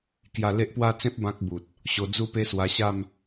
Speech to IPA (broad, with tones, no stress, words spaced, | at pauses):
kja˧le˦ʔpwa˥˧t͡sẽ˦p̚ bã˦k̚bu˨t̚ | ɕo˧d͡zu˦pe˦swa˧ ɕa˥˧m